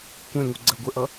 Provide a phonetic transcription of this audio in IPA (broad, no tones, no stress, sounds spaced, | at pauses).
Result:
kʷ ɛ̃ ŋ u ɡ͡ǀ ɜ ɡʷ ə ʔ ʌ